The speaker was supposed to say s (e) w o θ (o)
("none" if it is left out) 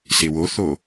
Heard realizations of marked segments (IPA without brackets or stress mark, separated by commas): e, o